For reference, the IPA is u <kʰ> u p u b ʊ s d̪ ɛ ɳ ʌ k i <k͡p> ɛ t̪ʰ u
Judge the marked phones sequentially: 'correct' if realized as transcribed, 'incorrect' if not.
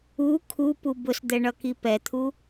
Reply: correct, incorrect: p

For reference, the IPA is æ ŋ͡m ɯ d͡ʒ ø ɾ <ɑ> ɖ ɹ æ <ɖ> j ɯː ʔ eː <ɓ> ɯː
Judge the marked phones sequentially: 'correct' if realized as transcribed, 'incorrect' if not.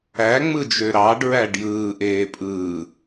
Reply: correct, correct, incorrect: pʼ

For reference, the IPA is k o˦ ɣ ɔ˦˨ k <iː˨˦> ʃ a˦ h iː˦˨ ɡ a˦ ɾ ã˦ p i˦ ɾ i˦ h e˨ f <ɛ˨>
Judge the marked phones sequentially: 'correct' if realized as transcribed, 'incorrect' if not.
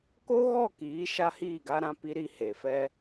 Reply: correct, incorrect: ɛ˦

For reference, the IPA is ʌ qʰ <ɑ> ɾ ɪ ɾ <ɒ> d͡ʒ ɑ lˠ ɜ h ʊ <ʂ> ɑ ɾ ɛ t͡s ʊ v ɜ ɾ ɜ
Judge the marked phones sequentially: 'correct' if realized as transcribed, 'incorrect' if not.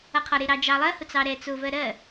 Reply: incorrect: ɒ, incorrect: ɑ, incorrect: t͡s

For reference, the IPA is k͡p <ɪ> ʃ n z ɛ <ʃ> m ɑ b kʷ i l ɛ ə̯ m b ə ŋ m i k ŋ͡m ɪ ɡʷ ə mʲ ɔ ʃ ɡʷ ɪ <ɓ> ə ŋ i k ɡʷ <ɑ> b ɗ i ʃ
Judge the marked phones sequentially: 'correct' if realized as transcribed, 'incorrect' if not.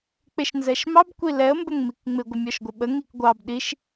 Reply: correct, correct, correct, correct

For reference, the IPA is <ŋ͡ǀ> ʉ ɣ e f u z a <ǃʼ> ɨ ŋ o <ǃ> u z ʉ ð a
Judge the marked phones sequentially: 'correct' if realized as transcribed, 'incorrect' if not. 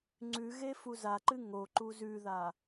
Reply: correct, incorrect: ǃ, correct

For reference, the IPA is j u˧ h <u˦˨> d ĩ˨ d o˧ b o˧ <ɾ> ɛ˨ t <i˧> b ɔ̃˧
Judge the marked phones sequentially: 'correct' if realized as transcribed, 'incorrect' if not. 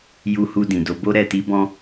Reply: incorrect: u˧, correct, correct

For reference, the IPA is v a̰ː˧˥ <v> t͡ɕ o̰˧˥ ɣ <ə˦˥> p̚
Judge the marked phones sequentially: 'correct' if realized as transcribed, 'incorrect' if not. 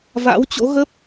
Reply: incorrect: w, correct

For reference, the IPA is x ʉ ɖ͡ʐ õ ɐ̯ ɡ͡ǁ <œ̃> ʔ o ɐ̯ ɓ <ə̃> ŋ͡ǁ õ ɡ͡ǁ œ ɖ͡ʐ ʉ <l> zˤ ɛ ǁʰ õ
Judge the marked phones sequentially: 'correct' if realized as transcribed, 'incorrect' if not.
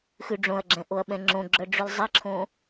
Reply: incorrect: ɛ̃, incorrect: ɛ̃, correct

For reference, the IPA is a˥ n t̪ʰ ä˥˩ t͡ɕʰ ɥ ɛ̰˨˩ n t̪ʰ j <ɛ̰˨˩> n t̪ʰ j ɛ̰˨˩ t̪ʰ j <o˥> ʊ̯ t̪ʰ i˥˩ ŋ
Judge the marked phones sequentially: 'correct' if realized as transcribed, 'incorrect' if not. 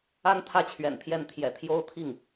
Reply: incorrect: ɛ˥˩, correct

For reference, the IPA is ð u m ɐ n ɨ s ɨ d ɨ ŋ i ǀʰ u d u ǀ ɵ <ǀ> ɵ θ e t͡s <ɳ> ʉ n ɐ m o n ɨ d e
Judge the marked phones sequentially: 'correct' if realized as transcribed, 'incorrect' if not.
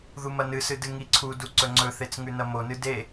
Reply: incorrect: ŋ͡ǀ, incorrect: ŋ

